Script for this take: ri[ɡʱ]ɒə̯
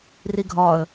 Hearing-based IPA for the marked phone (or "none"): ɡʱ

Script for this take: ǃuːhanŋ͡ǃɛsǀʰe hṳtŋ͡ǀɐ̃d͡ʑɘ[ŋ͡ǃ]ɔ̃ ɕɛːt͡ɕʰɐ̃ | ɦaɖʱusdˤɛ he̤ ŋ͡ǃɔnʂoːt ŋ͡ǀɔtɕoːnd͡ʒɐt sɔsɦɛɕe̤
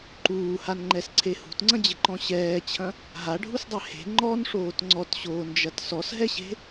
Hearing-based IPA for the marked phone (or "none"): ǃ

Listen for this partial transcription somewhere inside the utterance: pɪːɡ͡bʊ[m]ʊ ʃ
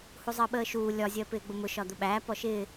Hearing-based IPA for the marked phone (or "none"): m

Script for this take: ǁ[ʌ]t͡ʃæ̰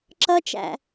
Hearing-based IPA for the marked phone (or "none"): ʌ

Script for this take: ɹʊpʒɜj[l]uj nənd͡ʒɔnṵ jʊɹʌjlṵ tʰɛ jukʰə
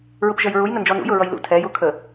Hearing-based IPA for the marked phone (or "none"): ɹ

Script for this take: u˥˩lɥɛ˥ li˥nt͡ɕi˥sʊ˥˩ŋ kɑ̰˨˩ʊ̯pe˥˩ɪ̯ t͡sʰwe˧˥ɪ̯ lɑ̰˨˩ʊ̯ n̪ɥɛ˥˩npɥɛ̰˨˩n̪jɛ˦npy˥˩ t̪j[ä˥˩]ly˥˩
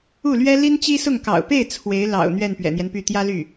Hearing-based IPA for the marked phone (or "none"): ä˥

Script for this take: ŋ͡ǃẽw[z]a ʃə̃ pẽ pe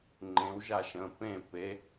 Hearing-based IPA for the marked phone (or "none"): ʒ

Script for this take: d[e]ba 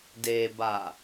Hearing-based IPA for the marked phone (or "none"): e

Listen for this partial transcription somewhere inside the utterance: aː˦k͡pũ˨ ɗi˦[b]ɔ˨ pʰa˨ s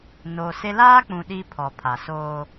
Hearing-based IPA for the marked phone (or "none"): pʰ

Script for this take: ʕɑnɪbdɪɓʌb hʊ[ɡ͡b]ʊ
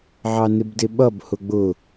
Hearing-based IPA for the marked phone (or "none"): ɡ͡b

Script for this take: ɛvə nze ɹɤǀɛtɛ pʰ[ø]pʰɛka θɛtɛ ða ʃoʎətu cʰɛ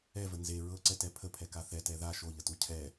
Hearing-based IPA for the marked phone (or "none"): ə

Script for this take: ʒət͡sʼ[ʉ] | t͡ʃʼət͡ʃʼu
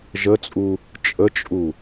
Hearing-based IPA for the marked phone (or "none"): u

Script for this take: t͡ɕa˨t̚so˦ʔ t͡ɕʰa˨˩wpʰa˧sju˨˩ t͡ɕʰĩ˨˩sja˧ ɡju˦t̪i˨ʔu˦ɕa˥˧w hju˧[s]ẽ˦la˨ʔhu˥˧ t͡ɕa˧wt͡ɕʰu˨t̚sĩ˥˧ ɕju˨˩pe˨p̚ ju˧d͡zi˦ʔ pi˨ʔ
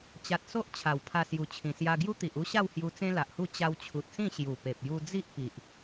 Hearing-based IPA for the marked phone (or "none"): t͡s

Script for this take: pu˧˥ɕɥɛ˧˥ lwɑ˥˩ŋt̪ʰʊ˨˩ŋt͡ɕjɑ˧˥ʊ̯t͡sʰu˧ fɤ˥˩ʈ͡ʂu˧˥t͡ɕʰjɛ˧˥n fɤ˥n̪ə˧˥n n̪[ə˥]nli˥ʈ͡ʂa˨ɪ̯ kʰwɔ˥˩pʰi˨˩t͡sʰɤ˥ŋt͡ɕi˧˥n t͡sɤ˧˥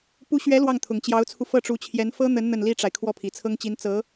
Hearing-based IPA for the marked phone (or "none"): ə˥˩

